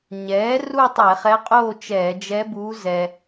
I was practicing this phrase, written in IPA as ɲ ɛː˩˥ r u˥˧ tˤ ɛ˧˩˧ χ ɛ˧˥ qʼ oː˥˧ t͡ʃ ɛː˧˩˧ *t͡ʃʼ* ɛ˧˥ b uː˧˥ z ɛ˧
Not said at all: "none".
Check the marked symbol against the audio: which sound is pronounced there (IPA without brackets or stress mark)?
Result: d͡ʒ